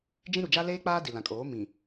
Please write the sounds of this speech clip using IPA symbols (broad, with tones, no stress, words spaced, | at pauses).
d͡ʒĩ˦ɾu˨ d͡ʒa˦leː˦k͡paː˦ di˨lã˨ kʼoː˨˦ mĩ˨